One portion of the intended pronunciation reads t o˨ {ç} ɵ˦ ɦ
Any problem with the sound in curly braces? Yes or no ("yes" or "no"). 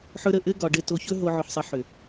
no